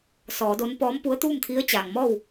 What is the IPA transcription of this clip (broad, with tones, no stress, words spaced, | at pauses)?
sɔː˩˧do˧˥n pɔː˧˥mpu˧˥ə̯ t̪uː˥˨mt̪ʰi˧˥ə̯t͡ɕaː˩ŋmɔː˥˨w